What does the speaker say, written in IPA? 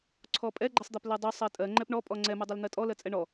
ǀʰ ɔ pʼ ɛ ɡ͡ǃ ɛ sˤ d̪ a p l ɜ dˤ u sˤ ɜ tʼ ɜ ŋ͡ǃ ɛ p ɳ ɔ pʼ ɔ ŋ͡ǀ ɛ m u dˤ ɛ l n̪ ɜ tʼ ɔ l ɜ t͡sʼ ɛ ɳ ɔ

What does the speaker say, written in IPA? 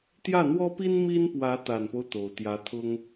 t̪ j ä˥˩ n̪ w ɔ˥ p i˥ n m i˥ n p w ä˧˥ t̪ a˨˩ n p o˦ ʊ̯ t̪ o˨˩ ʊ̯ t̪ j ä˧˥ t̪ʰ ʊ˥ ŋ

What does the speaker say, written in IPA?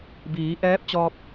b iː˩˧ ʔ ɛː˧˥ p̚ t͡ɕ ɔː˧ p̚

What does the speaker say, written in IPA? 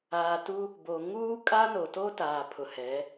aː˨ t u˦ | b o˨ ŋ uː˦ kʼ a˦ n o˨ t o˦ t aː˨ pʰ ʊ˨ h ɛ˨˦

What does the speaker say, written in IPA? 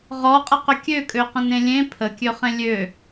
ʁ ɔ qʼ ə q ʏ kʲ ø kʼ ø q ə̃ n ẽ lʲ ẽ pʰ ə kʲ ø χ ẽ lʲ ø

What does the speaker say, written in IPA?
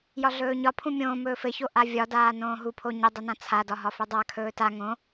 j ɒ ɮ ɵː ɲ ɒ pʰ ũ mʲ õː m ɵː f ɘ ç o ʔ a vʲ ɒ d aː n õː ɦ u pʰ o ɲ ə dˤ u n ã t͡sʰ a d ɒ ɦ ɒ f ɵ dˤ a kʰ ɵː t a ŋ õ

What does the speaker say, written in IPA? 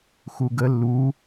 x u ɡ ə lː u

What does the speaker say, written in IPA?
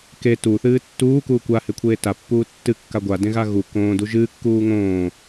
k e t u θ ɨː tː uː k uː kʷ a h e kʷʰ eː t a pː uː tː ɨ kː a ɡʷ a d ẽ ɣ a ɣ u k õː d u ʒ ɨː kː uː ŋ õː

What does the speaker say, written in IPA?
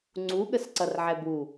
ŋ͡ǀ u ɠ ə s ǀ ʌ r ʕ ɛ b u

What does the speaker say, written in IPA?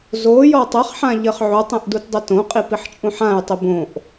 z o j ɔ tˤ ɘ χ ħ ã ʎ ɘ χ ʕ u tˤ ĩ ʔ d u t dˤ ɘ t õ qʼ i p i ħ t͡ʃʼ ũ ħ ã j tˤ i b õ ʔ

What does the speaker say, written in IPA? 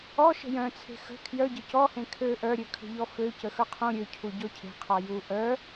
ɔ ʃ ə̤ j œ̃ t͡sʰ e̤ x ə̤ kʰ j œ ɟ ə c ɔ h ẽ kʰ ø ʔ œ ɾʲ ø kʰ ə̤ ʎ ɔ f ø c ə x œ qʰ ũ ɾʲ ø cʰ u ɟ ɔ cʰ e̤ qʰ ɔ j u ʔ œ

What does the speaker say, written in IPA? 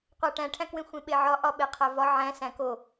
qʷ æ ʈ æ̃ ʈʰ æ̃ k w ẽ xʷ ẽ ɓ e ʕ ɒ ʔ ɒ ɓ e qʰ æ v ɒ ʕ æ̃ s æ̃ k o

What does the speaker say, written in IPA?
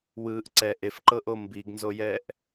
w ɯː ʔ ǀ ɛ ʔ e f ǃ ɤ ʔ o m b i ɡ n z o j ɛ ʔ

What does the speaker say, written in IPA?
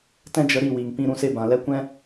t ɛ̃˦ d͡ʒ ə˧ ɾ i˦˨ w i˨ ŋ p ĩ˧ ɾ ũ˧ s e˦ b ã˨ l ɛ˦ kʷ ɛ̃˦

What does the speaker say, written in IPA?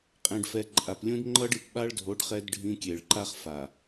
qʼ ẽ˨ ɖ f ɛ˨ ǃʼ a˨ p lʲ ũ˦ d ŋ͡ǃ ʌ˦ ɖ i˨ p ɓ a˦ ɭ dʱ o˨˦ ɖ χ ɛ˦ d ɖʱ ĩ˦ kʲ e˨ ɭ ǃ a˦ χ f a˨

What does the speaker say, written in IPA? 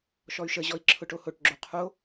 ʃ ɔ y̯ ʃ ə ʑ ɔ i̯ ǁʰ ʊ ʈ o h o ʈ ɡ͡ǁ o qʰ o

